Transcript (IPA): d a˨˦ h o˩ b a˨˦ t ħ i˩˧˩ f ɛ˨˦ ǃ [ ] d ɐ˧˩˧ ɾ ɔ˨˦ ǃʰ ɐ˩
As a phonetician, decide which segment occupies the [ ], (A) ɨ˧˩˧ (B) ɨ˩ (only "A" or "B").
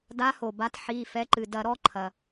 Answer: B